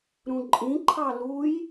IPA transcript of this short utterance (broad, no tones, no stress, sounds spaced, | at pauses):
ɾ ũ ǃʼ ĩ ǃʰ ɑ l u j